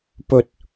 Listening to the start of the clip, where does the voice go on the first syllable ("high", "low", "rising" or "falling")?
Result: high